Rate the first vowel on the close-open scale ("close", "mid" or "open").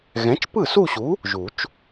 mid